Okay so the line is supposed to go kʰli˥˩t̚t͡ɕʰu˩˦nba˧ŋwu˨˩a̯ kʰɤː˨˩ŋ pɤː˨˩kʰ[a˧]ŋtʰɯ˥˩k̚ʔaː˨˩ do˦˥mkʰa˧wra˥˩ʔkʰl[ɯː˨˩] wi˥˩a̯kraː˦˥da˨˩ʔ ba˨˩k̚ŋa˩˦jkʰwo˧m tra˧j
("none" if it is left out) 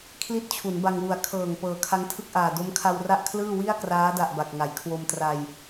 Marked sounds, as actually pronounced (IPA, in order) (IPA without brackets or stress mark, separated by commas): a˦˥, ɯː˥˩